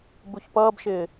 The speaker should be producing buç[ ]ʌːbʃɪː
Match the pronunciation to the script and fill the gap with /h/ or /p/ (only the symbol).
p